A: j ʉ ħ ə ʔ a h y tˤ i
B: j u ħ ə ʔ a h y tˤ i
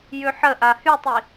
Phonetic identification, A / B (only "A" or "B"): A